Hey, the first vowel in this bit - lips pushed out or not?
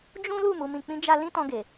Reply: yes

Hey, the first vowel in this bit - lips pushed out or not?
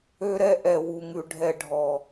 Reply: yes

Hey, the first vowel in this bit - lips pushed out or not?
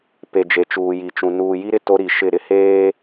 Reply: no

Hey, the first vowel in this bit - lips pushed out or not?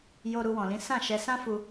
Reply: yes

